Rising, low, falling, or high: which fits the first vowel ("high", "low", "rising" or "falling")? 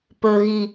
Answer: high